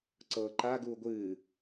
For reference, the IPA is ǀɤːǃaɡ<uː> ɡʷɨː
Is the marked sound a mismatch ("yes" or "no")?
no